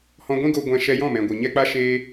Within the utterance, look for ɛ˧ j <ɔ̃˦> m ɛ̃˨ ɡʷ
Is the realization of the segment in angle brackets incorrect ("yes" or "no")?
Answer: yes